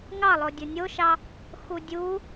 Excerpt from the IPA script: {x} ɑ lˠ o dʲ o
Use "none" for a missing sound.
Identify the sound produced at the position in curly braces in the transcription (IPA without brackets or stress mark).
ŋ